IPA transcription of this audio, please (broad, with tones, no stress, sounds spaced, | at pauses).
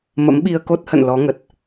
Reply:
m ə̰˧˥ m ɓ i˧ ə̯ k o˦˥ t̚ h ə̰˧˨ n l ɔ˨˦ ŋ ə˨˩ t̚